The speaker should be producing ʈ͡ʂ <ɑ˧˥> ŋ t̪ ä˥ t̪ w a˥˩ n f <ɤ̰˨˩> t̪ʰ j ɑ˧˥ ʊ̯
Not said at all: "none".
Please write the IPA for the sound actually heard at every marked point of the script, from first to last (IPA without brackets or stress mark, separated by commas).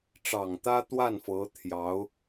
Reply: ɑ˨˩, ɤ˧˥